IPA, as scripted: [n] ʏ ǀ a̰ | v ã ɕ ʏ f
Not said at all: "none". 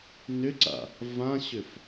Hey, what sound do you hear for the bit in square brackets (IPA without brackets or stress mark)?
n